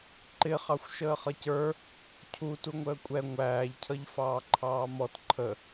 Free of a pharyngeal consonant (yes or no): yes